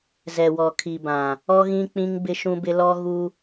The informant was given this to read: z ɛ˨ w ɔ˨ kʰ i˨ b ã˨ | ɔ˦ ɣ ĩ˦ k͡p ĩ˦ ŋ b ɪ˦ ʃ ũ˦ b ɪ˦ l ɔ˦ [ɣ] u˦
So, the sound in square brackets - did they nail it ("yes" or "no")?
yes